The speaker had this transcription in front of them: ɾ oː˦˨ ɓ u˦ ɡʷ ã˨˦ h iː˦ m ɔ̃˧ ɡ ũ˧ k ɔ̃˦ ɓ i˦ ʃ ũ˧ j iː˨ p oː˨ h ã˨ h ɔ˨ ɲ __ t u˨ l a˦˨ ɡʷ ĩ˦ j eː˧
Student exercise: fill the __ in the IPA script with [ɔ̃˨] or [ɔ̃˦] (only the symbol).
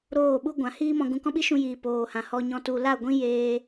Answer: ɔ̃˨